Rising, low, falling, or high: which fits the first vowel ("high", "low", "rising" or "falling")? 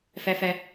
high